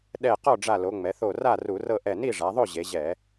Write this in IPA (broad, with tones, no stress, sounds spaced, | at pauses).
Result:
ɗ ɛ˧˩ q ɔ˥˨ ɖ͡ʐ a˧˩ l o˩˧ ŋ͡m ɛ˩˧ θ o˧˩ r a˥˨ r u˧˩˧ r ɤ˥˨ ʔ ɛ˧˩ n i˥˨ ʐ a˩˧ ðˤ o˥˨ ʑ e˩˧ ʑ ɛ˧˩˧